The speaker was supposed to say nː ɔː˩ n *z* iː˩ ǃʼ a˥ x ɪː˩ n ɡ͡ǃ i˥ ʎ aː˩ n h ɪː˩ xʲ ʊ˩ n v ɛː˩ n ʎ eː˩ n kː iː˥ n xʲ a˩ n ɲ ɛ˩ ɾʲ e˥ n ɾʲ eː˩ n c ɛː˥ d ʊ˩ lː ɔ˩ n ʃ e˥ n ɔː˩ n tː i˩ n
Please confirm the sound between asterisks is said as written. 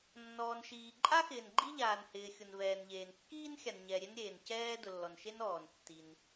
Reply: no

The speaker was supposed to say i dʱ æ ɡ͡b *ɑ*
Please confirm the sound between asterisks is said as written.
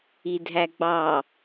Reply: yes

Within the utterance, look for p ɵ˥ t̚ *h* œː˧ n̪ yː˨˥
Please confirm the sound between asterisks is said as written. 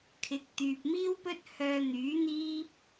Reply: yes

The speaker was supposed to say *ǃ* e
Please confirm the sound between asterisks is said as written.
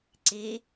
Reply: no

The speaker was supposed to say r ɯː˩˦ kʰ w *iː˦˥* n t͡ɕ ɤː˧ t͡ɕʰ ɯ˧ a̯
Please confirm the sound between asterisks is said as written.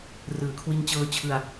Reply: no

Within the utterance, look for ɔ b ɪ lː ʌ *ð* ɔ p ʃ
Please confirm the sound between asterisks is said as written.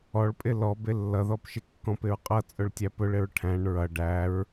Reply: yes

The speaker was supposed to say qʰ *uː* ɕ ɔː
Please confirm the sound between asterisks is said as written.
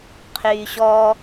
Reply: no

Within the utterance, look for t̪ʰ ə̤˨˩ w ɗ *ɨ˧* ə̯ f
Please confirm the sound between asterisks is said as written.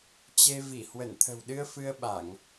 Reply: yes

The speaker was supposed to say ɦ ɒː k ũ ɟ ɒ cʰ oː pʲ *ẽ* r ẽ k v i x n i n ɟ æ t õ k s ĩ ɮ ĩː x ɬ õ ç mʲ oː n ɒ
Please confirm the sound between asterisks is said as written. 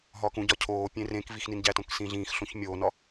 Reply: yes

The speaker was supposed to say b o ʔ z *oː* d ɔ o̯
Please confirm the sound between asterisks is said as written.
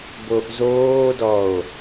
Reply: yes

